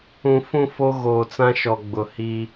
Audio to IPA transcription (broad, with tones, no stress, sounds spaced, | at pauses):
ũ˨ f ũ˦˨ f o˦ ɣ oː˨ t͡s ã˦ ʃ ɔ˨ ɡ͡b ʊ˨ h i˦